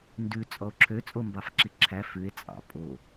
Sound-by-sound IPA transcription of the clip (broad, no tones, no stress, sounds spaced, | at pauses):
n d ʉ t͡sʼ ɔ o̯ ǁʰ ø t͡sʼ o m b ɑ f ǁ i ǁʰ æ f ʉ e̯ t͡sʼ ɑ̰ pʼ o